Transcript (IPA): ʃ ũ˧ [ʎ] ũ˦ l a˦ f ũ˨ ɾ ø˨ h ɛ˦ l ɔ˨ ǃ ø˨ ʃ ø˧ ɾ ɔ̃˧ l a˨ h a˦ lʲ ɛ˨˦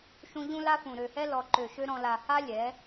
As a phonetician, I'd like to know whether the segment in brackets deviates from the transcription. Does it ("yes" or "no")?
no